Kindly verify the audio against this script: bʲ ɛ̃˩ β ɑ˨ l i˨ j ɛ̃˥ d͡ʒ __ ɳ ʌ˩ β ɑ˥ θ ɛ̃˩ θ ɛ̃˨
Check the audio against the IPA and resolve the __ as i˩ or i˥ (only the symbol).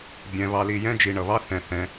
i˩